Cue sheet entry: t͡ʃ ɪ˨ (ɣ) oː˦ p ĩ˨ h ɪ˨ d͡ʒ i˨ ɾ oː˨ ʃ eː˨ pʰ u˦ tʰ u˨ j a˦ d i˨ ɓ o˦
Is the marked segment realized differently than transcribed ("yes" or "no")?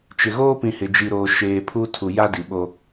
no